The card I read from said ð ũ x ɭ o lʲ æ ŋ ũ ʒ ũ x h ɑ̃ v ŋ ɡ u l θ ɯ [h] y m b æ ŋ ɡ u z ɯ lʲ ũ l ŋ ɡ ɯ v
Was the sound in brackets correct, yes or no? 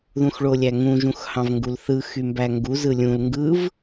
no